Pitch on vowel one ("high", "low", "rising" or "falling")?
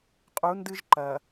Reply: rising